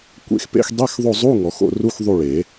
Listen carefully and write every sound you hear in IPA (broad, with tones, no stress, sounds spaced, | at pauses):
kʷ ḛ˦˨ x p ḛ˧˥˧ x dˤ e˧˥˧ x ðˤ o˦˨ zˤ u˧˥˧ ŋ ɔ˨˩˦ x o̰˦˨ r u˧˥˧ x ðˤ u˦˨ ɭ e˨˩˦